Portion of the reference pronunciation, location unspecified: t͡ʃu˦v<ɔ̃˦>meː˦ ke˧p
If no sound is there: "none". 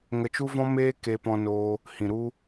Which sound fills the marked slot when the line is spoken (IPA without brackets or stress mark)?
ɔ̃˦